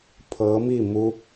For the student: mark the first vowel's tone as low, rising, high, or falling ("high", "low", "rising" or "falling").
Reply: rising